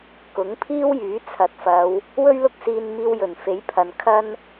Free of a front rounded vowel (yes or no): no